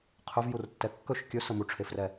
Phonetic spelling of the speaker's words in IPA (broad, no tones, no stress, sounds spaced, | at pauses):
qʰ ɵ v j u r tː ɛ kː ɵ ʃ kʲ ɵ s ə m u ʈ͡ʂʰ e f r ɛ